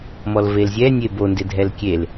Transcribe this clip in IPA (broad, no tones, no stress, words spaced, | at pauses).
mɔlvelzʲɛnʲe bondɪ dʱɛlkʲel